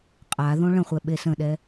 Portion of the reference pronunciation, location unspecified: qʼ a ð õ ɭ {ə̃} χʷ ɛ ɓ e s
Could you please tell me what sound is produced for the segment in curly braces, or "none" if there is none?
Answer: ə̃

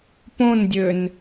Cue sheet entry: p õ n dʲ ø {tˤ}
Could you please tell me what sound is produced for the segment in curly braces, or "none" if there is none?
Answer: n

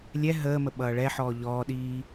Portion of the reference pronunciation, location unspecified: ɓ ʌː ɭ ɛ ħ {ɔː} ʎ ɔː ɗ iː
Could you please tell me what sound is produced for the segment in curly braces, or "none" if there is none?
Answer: ɔː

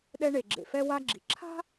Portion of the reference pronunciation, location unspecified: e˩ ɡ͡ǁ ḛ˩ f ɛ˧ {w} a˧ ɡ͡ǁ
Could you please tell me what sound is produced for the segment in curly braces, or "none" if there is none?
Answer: w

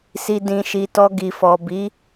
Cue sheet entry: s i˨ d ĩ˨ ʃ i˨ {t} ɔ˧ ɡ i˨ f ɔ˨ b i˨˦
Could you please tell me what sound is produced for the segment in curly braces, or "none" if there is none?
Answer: t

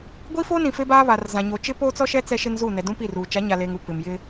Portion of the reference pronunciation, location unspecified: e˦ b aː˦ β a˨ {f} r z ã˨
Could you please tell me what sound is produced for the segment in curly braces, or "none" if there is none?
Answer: none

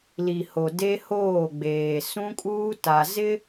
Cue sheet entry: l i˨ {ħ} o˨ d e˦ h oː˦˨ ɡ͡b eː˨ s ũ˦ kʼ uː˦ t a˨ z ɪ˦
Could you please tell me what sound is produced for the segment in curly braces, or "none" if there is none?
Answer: h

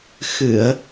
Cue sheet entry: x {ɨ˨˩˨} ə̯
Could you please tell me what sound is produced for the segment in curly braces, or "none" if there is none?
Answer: ɨ˨˩˨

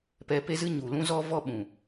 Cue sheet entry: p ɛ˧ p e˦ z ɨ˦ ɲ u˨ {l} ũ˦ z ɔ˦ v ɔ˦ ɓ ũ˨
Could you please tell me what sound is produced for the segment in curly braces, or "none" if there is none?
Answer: l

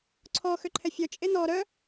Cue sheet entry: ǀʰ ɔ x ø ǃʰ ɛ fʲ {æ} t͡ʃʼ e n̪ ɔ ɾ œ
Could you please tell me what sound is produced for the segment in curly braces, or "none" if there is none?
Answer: œ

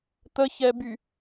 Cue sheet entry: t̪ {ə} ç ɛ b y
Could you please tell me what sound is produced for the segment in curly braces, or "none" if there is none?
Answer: ə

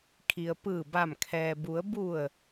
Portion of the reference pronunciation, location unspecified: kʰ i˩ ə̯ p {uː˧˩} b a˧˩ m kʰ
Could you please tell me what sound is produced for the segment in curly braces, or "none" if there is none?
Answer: ɯː˧˩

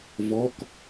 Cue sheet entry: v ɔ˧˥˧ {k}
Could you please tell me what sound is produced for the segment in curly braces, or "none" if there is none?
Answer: k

